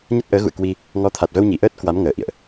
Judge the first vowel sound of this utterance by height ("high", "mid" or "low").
low